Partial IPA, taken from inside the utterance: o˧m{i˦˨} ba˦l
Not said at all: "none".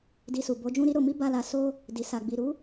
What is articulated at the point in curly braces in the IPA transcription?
i˦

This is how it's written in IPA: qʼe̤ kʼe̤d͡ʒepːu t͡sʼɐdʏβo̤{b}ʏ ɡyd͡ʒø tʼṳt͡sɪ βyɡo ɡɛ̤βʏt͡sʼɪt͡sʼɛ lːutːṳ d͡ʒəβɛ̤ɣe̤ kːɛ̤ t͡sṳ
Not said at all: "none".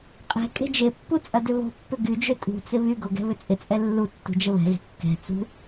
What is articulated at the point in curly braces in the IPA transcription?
pː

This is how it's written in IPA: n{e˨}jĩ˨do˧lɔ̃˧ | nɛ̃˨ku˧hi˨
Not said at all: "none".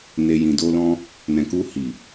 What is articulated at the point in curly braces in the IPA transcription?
e˨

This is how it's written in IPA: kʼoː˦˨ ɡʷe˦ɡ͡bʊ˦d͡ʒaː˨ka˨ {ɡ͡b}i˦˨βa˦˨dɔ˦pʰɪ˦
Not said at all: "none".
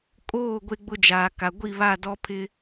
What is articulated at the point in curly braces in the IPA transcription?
ɡʷ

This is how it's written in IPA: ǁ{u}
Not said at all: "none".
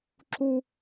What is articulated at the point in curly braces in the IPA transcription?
u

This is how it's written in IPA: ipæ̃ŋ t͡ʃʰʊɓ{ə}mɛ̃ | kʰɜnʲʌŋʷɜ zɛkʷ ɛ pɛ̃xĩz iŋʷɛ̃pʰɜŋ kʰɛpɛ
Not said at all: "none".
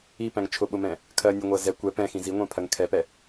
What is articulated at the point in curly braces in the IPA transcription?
ʊ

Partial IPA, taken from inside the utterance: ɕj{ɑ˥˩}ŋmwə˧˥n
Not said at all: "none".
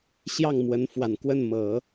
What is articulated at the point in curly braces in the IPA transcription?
ɑ˥˩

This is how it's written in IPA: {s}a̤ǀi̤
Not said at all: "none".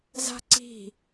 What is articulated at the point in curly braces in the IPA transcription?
z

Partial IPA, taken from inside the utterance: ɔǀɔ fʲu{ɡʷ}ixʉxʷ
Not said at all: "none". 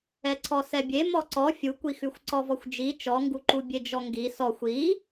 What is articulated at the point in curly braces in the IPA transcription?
kʷ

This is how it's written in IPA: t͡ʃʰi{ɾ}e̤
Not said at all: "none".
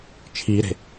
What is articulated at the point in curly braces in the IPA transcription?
ɾ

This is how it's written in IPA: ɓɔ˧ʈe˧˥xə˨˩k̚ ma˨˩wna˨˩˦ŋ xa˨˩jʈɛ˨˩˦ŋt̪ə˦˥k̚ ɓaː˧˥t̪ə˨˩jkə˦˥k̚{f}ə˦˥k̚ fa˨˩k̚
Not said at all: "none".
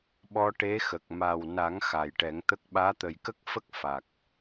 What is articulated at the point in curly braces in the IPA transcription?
f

